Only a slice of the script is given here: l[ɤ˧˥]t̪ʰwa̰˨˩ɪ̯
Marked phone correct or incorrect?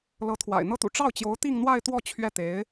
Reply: correct